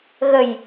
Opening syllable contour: low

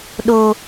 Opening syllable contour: high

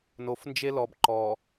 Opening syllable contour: low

